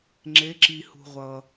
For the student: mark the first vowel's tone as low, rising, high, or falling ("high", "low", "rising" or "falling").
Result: rising